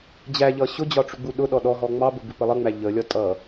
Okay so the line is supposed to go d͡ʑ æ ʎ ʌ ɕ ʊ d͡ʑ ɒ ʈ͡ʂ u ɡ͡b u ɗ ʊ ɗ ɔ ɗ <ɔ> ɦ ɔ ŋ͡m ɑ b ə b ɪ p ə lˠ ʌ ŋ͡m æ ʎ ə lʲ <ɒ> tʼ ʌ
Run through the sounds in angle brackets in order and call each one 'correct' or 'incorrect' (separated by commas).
correct, correct